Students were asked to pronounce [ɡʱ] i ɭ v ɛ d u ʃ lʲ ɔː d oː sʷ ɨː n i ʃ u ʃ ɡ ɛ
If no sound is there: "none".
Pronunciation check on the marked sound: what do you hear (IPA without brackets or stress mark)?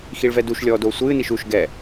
x